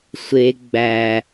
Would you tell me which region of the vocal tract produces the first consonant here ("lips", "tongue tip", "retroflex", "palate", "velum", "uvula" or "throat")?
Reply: tongue tip